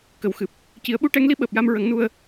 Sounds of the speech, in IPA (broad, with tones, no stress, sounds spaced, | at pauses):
k ə˨˩˨ w x ɨ˨˩ p̚ | c i˨˩˦ ə̯ ɓ u˧˥ ʈ ɛ˧˥ ŋ l i˧˥ ɓ əː˨˩ p̚ j a˧ m ɹ ə˨˩˦ ŋ n u˧ ə̯